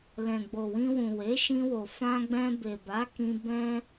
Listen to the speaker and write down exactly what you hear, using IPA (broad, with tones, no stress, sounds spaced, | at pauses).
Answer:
l ɛ̃˨ ɡ͡b o˨ w ĩ˧ w ũ˨ w e˨˦ ʃ ĩ˧ w o˨ f ã˧ ɡ͡b ɛ̃˧ b e˨ b a˨˦ k ĩ˧ b ɛ̃˦